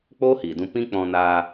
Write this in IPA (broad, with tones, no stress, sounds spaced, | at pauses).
k͡p oː˦ h iː˨ d ũ˧ p ĩ˦ k͡p ɔ̃˧ n aː˧